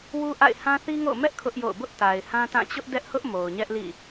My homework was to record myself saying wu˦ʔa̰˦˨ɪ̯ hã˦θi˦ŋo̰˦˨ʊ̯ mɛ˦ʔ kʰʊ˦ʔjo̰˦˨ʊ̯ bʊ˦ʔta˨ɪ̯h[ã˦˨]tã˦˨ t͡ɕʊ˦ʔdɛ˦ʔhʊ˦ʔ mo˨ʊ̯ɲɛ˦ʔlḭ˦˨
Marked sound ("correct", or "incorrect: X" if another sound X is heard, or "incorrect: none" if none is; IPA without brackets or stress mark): incorrect: ã˦